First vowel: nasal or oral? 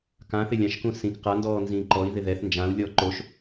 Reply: nasal